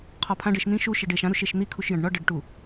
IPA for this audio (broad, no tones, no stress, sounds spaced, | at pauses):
qʰ ɒ pʰ ã ɖ e ʃ n̪ ĩ ʃ u ʃ e ɖ e ʃ ã ɾ u ʃ e ʃ n̪ i kʰ u ʃ j ɐ̃ ɖ ɳ ɒ ɖ ɐ ɖ ʈ u